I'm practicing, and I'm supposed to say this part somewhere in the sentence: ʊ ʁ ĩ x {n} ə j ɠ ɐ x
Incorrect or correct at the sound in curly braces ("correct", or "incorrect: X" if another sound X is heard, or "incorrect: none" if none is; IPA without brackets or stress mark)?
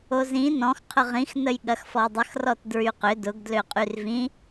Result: correct